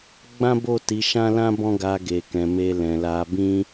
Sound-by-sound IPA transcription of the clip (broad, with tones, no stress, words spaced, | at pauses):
ɡ͡bã˦ bo˦˨ti˨˦ʃã˦lã˦ bɔ̃˦ɡa˧ɡe˨ kɛ̃˨me˧ lɛ̃˨la˧ bĩ˦